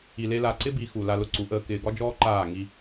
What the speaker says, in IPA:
i˧ l e˦ l a˦˨ ǀ ɪ˦ b i˨˦ x u˨ l a˧ l ʊ˧ ǀ u˨˦ ʔ əː˧ k ɪː˧ ɡ ɒ˦ d͡ʒ ɔː˦ ǃ aː˦˨ ŋ i˧

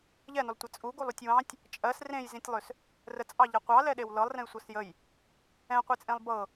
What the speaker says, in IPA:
ʎ ɛ n ʏ lˠ tʷ ə t͡sʼ u ɡ u lˠ u tʲ w ɑ̃ tʲ | t͡ʃʼ ɜ s r ẽ j z ĩ tʲ lˠ ʏ s | r ə t͡sʼ ɑ ʎ a qʷ ɑ l ɛ ɗ e w l ɤ lˠ r ẽ j sʷ ɤ s j ə j | ɛ̃ qʷ i t͡sʼ ẽ lˠ b ɤ

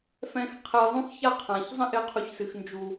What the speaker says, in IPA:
f ɛ̃˧ x qʰ ɛ˧ j ðˤ ũ˦ x ç a˦ qʰ ã˨ ç zˤ ɛ̃˦ ʔ ɪ˧ qʰ u˨ ç s ɨ˨ x n d͡ʒ u˨

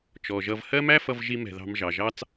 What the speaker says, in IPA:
t͡ʃ ɔ˩ ʒ ʌ˨ v h ɜ˦ m æ˦ f ʌ˨ v ʒ i˨ m ɛ̤˩ ð ɑ̤˨ m ʒ ɑ˩ ʒ ɑ˦ t͡s

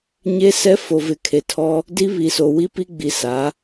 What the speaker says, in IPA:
ɲ e˦ s ɛ˦ f o˨ v ɪ˨ kʰ e˨ tʰ ɔ˦ | d i˦ β i˨ s o˨ w i˦ p i˦ ɡ͡b i˨ s a˨˦

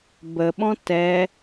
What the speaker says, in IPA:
b ə ɓ ɔ̃ t ɛ

